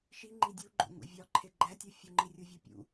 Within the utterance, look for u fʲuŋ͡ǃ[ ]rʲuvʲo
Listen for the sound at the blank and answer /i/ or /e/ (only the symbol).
i